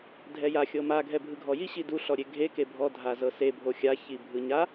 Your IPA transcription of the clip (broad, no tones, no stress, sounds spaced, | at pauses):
dʱ ɛ j a xʲ ɤ m a ɡʱ ɛ bʱ ɯ ɡʱ ɔ j i ɕ i d u ɬ ɔ ɾʲ e ɡʱ e k e bʱ ɔ dʱ a z ɤ s e bʱ o xʲ a ç i bʱ ɯ ɲ a